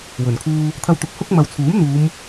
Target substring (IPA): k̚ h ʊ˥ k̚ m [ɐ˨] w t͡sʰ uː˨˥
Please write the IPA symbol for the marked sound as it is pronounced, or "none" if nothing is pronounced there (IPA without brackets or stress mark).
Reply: ɐ˨